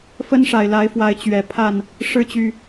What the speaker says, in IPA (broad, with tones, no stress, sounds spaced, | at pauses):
f ə˦ n ʂ a˨˩ ɪ̯ l a˨˦ ɪ̯ f w a˨˦ ɪ̯ t͡ɕ ɥ ɛ˨˩ pʰ a˥˨ n | ʂ ɻ̩˥˨ t͡ɕ y˨˩